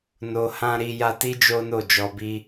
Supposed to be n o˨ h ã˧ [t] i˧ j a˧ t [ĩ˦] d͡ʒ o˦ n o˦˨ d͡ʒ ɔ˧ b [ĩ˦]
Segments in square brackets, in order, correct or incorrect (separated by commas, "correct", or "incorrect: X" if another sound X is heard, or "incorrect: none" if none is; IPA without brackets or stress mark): incorrect: ɾ, incorrect: i˦, incorrect: i˦